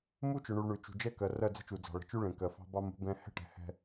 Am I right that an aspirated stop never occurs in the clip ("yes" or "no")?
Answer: yes